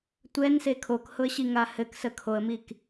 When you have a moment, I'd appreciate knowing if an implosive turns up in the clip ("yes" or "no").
no